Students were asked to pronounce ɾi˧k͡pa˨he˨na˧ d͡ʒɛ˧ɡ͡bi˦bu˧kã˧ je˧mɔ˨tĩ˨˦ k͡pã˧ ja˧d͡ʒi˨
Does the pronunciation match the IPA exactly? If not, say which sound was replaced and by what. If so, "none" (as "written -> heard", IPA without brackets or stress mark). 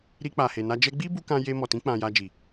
none